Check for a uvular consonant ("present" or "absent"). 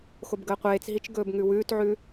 present